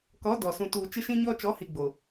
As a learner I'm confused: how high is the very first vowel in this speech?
mid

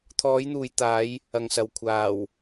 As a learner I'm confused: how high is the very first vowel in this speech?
mid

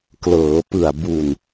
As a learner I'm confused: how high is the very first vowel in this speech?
mid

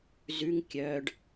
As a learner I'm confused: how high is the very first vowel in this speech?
high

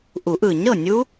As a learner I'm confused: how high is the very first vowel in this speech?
high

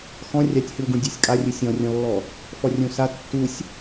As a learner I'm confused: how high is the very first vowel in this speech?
mid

